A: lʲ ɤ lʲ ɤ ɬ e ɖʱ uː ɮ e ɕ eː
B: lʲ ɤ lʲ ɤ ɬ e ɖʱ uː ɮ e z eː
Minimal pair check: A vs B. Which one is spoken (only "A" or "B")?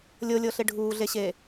A